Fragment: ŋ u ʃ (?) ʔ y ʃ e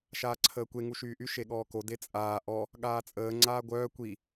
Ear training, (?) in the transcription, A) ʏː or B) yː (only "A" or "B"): B